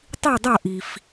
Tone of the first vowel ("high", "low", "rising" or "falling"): falling